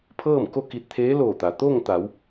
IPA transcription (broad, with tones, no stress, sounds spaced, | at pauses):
pʰ ɤː˥˨ m k o˥˨ k i˧ t̚ t̪ʰ eː˧˥ l oː˧˩ t̪ a˩ t̪ oː˥˨ ŋ t̪ a˩˧ w